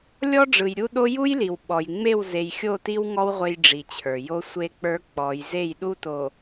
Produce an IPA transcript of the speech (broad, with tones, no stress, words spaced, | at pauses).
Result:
lʲɔ˦ɖ͡ʐɯ˨jɾʲu˦ɗo˦ ju˦jli˨w ɓɔ˨j ŋ͡me˦˨wze˨j xʲo˦˨ti˦wŋɔ˦w ʁʷe˦jɖ͡ʐi˨t͡ɕʰə˞˨ jo˦sʷe˦k͡pə˞˦ k͡pɔ˨˦j ze˦˨jɗu˦to˨